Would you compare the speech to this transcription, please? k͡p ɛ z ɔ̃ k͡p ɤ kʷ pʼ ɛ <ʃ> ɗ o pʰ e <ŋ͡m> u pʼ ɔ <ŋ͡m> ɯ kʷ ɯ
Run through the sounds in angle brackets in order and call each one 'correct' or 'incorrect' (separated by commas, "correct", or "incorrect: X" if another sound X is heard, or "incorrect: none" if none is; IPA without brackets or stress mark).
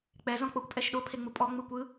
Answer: correct, correct, correct